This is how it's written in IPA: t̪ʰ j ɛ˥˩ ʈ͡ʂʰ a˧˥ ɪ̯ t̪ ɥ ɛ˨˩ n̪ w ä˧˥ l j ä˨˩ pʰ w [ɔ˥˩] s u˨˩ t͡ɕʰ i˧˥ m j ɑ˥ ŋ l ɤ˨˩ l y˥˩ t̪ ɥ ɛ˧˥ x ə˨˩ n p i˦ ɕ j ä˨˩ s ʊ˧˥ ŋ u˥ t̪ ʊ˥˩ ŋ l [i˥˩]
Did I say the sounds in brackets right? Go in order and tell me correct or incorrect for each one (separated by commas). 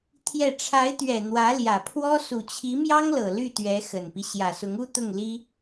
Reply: incorrect, incorrect